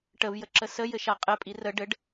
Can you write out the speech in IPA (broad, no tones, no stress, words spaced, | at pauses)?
ʈəvjəǁə səjɘʃa qʼɘpʼi rə ɖɘɖ